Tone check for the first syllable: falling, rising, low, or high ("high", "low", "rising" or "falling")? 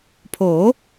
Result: rising